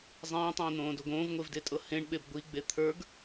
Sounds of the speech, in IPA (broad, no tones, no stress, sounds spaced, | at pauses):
zˤ ĩː tˤ ĩː n̪ õː d o ɡ õː v ŋʷ e v d e tʼ ɤ h ẽ ɳ ɓ e b ɡʷ i ɡ͡b e t̪ʰ ə˞ ɡ